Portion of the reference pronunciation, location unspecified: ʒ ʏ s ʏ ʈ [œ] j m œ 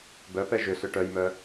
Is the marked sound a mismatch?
no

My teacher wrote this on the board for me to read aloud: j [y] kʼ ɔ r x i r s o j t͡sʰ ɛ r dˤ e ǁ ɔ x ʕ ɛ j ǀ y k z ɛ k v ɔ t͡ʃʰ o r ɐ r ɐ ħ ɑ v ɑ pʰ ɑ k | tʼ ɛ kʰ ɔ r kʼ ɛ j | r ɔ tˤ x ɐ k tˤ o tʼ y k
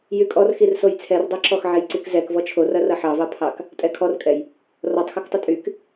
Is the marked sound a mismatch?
no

